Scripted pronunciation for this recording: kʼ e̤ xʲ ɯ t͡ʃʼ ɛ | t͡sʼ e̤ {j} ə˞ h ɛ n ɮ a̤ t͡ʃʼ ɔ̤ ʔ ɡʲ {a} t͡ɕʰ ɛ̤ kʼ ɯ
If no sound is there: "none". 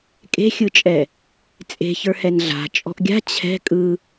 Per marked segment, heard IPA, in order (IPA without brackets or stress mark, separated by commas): ç, a̤